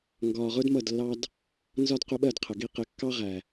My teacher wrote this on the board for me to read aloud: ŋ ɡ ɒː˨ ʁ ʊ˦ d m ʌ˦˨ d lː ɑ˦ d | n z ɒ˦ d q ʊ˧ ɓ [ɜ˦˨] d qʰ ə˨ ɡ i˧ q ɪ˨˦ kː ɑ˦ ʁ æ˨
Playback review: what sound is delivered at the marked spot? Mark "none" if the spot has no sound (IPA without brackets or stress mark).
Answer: ɜ˦˨